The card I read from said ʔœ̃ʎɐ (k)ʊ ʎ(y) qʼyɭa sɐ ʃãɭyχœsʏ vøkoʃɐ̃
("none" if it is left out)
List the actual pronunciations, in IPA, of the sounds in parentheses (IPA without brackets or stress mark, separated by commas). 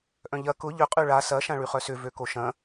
k, ʏ